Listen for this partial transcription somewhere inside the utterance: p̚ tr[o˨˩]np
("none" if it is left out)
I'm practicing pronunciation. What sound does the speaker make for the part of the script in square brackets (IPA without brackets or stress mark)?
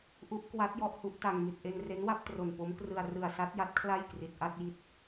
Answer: o˨˩